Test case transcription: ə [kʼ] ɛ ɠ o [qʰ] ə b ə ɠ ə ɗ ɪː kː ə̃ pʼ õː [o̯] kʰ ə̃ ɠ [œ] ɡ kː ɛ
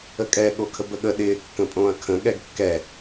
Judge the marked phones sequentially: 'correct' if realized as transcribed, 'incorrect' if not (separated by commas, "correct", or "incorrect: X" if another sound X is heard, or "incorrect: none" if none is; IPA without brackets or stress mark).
correct, incorrect: kʰ, incorrect: ɐ̯, incorrect: ɛ